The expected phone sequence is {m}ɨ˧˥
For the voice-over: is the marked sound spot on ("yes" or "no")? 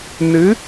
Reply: no